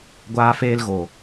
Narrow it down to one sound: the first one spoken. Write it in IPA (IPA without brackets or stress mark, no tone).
ɡʷ